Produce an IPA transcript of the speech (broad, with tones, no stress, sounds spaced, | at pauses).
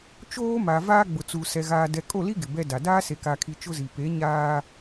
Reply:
t͡ʃ oː˦ m a˨ v aː˦ ɡ͡b ʊ˨ t͡s u˨ s ɛ˨ ɣ aː˨ d ɛ˨ kʼ o˦˨ l i˦ ɡ ɪ˨ b ɛ˦ d a˨ d aː˦ s e˨ k a˨ kʰ i˨ t͡ʃ ʊ˦ z i˨ p e˨˦ ɲ aː˦